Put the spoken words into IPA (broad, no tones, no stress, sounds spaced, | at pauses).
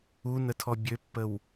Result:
u n ə tʰ ɔ bʲ ø pː ə w